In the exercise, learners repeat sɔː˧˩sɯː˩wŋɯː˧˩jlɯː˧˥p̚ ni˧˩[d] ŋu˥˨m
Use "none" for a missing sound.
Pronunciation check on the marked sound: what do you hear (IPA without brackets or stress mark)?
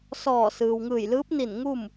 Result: n